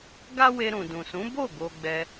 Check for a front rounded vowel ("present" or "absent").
absent